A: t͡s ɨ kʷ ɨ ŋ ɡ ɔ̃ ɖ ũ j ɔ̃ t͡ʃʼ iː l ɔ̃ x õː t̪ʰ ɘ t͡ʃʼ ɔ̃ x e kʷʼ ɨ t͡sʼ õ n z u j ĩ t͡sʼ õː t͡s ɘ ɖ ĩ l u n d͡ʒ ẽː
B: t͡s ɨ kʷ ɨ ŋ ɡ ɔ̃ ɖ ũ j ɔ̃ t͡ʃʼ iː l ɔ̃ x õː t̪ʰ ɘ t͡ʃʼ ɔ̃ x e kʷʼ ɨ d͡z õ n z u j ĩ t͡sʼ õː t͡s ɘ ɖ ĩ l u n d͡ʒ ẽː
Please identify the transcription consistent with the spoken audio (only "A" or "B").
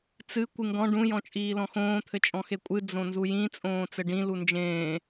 B